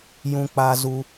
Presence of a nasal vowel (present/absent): present